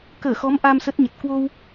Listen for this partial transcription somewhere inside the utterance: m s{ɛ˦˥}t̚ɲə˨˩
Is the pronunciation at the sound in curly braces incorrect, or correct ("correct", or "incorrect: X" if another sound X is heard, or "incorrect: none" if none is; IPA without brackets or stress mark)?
incorrect: ə˦˥